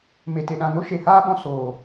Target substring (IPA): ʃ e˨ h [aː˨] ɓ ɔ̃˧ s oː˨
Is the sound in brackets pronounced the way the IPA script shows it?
no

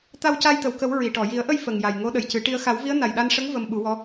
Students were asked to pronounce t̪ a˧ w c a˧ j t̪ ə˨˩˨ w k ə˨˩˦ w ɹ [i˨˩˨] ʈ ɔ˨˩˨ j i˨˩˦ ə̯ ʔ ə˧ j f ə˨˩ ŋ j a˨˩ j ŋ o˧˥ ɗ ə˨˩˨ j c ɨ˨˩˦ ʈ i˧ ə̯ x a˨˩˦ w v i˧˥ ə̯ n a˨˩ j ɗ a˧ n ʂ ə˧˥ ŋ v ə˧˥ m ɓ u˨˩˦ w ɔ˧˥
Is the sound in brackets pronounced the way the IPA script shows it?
yes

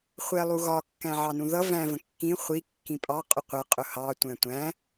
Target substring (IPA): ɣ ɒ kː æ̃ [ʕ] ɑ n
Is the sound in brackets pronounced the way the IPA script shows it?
yes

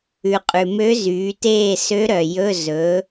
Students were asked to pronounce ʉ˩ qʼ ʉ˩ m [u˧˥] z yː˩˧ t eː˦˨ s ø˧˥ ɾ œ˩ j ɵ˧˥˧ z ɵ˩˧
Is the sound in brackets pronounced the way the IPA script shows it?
no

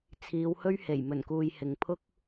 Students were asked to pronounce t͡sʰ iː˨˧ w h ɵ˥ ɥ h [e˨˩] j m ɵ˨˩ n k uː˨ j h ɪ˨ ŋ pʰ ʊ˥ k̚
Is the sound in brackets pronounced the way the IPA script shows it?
yes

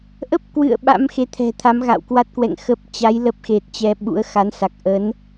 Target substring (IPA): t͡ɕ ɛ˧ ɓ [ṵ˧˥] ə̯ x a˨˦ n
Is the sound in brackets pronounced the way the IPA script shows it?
yes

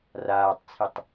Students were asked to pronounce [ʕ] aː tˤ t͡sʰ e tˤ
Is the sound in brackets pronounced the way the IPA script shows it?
no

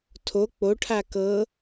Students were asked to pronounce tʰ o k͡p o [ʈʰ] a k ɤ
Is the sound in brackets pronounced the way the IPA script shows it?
yes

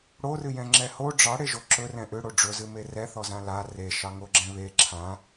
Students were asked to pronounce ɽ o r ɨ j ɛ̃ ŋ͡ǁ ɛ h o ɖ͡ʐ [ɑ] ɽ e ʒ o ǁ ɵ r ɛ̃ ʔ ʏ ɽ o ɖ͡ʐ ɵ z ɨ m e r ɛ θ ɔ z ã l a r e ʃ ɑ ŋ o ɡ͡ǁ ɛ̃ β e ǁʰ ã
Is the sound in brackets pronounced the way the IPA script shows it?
yes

